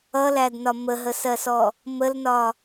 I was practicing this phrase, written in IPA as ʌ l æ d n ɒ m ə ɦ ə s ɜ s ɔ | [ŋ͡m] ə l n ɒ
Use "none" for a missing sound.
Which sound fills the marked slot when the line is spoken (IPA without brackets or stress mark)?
m